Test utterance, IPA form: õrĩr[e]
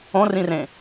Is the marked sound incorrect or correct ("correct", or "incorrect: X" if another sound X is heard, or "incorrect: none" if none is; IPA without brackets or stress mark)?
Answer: incorrect: ẽ